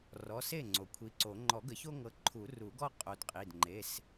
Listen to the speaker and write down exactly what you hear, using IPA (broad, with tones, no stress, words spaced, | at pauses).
rɔ˩˧˩se˥˩ ŋ͡ǀo˩kʷʰi˨˦ǀo˨˩˦ ŋ͡ǃɔ˨˩˦ɡə˨˩˦ço˦ŋɤ˨˦ ǃʰu˨˩˦ru˨˩˦ɡɔ˦ qʼo˨˦dqʼi˩˧˩d ŋ͡ǃe˩˧˩s